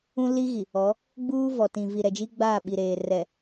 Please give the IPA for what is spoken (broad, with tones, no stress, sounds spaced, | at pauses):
ũ˦ l i˦ ɣ i˨ | ɔ˨˦ | ɡ͡b uː˦ v ɔ˨ t ĩ˨ v i˨ ɾ ɛ˨ d͡ʒ i˦ ɡ͡b aː˦˨ ɓ i˨ ɾ eː˨ r ɛ˨